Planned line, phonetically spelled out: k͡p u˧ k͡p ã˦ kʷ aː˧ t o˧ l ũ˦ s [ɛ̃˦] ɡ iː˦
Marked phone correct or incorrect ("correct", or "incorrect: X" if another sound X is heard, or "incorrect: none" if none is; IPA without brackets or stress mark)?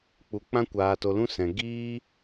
incorrect: ɛ̃˧